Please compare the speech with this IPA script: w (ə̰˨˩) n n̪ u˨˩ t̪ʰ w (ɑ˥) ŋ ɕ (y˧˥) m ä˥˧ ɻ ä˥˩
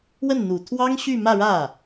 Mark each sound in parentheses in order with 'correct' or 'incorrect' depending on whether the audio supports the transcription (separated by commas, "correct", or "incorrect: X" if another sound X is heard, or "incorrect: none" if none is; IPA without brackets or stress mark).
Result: incorrect: ə˥˩, correct, incorrect: y˥˧